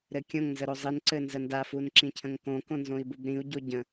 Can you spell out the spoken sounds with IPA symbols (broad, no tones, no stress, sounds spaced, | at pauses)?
ɾ ɘ kʲ õ ŋ n z ə ɾ o zˤ i n ǀ ɘ n z ə n d a f u n ǁ ĩ cʰ ə̃ ŋ k õ k õ n z õ i̯ b u b ɾ ĩ u̯ ɟ o ɟ ə̃